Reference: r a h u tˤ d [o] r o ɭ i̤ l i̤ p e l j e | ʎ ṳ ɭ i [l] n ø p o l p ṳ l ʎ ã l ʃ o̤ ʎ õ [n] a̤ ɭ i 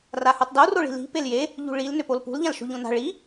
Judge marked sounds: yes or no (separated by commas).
yes, yes, yes